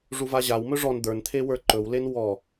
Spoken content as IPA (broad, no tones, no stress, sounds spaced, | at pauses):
ʐ u v a ʑ a w m ɵ ʐ ɔ n d̪ ə˞ n t̪ʰ e w ə˞ ǃ ɵ w l e n w ɔ